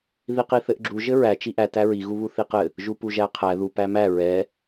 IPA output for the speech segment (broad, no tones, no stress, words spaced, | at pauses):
ðiqiθɘʔɡ͡ǁu ʒɘɹæ t͡ʃiʔæ tæɹi ɣuβuθiqɘ | ʒupuʒæqʰæ ðu pæmæ ɹɛ